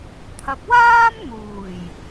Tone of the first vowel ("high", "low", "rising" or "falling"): low